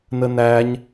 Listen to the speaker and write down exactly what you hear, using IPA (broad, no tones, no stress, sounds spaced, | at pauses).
n ə n æ ɲ